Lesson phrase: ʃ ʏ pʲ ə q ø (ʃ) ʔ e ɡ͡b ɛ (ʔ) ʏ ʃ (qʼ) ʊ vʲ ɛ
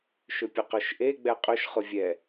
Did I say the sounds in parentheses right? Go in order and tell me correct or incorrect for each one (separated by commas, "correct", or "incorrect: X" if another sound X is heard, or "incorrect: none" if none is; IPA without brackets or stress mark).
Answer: correct, incorrect: qʼ, incorrect: χ